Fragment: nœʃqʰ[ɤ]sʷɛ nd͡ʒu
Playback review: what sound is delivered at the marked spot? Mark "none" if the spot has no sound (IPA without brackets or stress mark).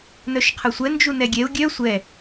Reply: ɤ